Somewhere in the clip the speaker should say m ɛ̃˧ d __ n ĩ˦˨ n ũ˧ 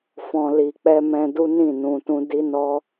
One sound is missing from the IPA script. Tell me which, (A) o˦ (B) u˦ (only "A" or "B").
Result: B